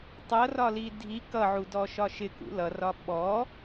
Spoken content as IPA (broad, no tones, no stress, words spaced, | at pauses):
tˤʌrɒli dʱi kʌʕudɔʃɒ ʃɪkṵ lʌrɒ ɓɔ